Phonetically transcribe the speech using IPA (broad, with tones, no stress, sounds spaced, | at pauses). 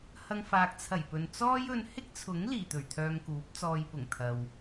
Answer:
h ɐ˧ ŋ f aː˨ k̚ t͡sʰ ɐ˨˩ j p ɵ˨ n t͡s ɔː˥ j ɵ˧ n h ɪ˥ k̚ t͡sʰ ʊ˨˥ ŋ l iː˨˩ t̪ ɵ˨˩ ɥ t̪ʰ œː˧ ŋ k uː˨˥ p̚ t͡s ɔː˧ j p ʊ˨˩ ŋ t̪ʰ ɐ˨ w